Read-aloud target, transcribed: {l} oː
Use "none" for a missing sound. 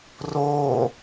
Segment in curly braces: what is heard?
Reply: r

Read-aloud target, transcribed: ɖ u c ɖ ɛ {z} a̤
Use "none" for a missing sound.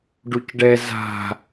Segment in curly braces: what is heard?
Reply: z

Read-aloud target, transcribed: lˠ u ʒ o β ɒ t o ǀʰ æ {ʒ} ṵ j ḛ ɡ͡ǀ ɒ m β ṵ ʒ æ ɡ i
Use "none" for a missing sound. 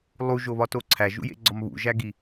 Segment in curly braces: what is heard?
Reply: ʒ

